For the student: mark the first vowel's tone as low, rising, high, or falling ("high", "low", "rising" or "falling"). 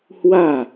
falling